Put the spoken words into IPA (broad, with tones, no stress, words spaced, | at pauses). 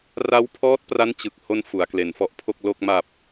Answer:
ra˦˥wpʰɔː˦˥t̚pra˦˥n t͡ɕɯ˨˩k̚ ho˥˩n fu˩˦a̯kle˩˦nfɔ˦˥ʔpʰo˥˩k̚ lo˥˩k̚ ma˨˩p̚